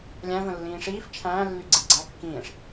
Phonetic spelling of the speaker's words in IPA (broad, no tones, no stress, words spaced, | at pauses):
lʲæ̃ və̃lːĩːʂiːf t͡ʃʰæ̃ː lːyɡ͡ǀidɡ͡ǀæ kːĩːʂ